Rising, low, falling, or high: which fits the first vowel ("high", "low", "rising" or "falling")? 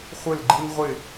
falling